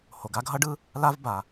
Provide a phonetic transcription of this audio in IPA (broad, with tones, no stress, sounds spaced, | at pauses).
h o˩ ɡ a˥ ɡʱ ʌ˥ ɖ ɯ˥ | l a˥ v b a˩